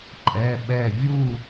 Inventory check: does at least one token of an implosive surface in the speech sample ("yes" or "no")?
yes